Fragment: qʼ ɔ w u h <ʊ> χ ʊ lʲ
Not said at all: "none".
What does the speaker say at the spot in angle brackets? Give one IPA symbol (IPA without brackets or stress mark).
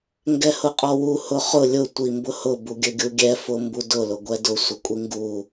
ʊ